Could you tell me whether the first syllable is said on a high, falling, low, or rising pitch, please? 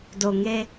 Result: low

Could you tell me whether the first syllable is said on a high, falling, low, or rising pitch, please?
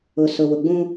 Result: low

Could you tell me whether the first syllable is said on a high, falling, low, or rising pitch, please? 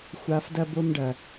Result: low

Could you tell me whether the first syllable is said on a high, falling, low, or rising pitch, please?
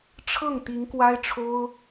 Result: falling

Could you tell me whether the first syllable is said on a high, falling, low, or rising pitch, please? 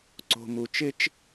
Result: low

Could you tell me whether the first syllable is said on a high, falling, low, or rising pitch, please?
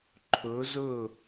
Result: rising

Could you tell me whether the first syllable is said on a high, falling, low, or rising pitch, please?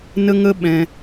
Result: high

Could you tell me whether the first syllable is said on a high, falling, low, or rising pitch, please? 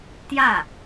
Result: falling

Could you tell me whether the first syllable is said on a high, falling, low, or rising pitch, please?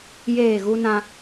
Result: falling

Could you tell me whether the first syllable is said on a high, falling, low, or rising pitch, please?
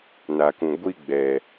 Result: low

